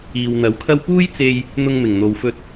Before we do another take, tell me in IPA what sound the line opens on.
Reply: iː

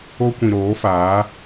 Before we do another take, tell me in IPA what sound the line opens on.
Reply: o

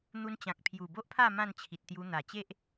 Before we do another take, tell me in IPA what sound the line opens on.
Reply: n̪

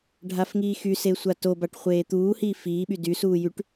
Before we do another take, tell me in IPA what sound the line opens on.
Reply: ɖʱ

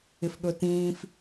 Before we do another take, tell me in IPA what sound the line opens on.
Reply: ɪ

